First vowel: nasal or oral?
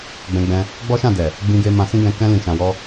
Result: nasal